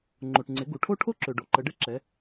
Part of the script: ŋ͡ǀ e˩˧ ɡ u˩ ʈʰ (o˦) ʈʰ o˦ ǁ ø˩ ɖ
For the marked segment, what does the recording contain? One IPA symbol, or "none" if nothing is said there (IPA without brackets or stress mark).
o˦